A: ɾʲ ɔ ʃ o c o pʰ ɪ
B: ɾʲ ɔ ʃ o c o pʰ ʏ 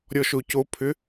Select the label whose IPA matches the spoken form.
B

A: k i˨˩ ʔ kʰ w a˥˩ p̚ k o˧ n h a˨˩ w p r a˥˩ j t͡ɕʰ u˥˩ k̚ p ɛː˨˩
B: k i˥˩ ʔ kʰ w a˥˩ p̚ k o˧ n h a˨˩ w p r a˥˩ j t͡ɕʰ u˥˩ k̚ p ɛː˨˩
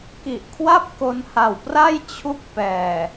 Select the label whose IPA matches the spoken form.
A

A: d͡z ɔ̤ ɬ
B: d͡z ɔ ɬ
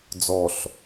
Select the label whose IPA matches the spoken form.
B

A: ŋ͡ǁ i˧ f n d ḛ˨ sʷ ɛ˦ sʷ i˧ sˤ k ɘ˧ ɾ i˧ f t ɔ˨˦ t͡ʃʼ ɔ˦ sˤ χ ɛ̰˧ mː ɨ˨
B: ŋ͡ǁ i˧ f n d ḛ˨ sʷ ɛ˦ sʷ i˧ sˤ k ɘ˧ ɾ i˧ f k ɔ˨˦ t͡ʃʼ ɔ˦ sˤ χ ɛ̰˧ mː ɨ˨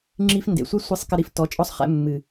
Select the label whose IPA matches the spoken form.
A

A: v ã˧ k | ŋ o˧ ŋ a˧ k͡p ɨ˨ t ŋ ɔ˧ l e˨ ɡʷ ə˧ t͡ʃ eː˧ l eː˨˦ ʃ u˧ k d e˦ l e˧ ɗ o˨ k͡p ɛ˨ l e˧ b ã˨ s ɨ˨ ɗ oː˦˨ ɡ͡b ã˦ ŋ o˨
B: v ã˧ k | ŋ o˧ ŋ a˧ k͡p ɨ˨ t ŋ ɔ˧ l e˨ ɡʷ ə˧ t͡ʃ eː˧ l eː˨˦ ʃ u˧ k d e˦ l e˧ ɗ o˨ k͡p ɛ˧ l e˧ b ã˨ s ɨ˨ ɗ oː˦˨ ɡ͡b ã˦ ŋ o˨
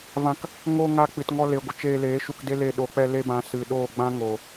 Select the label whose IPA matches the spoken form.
B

